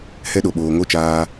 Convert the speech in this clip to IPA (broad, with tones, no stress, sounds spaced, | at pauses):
h ɛ˦ ɗ o˨ ɓ oː˨ ŋ o˦ t͡ʃ aː˧